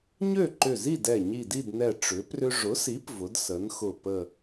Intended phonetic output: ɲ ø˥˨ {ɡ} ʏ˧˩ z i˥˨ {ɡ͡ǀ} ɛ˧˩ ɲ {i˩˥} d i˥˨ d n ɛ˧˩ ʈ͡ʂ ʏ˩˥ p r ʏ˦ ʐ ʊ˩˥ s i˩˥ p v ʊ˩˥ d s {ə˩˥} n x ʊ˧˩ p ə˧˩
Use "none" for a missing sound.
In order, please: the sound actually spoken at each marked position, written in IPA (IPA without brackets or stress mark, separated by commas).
ǃ, d, i˧˩, ə˩˥